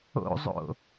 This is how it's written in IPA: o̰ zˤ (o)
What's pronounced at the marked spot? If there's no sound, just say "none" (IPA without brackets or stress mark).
o̰